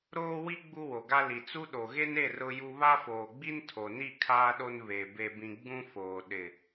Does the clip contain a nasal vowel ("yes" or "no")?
yes